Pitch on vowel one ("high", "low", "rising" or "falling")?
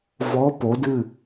rising